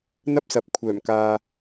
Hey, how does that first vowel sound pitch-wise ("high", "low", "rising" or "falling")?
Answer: high